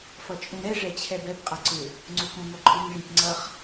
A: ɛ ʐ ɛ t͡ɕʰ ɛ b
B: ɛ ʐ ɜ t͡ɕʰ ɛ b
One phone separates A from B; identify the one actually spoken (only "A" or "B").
A